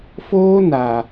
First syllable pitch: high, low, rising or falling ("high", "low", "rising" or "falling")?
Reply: high